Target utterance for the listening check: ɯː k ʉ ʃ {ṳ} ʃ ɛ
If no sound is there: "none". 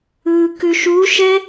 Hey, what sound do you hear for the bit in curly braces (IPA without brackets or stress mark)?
u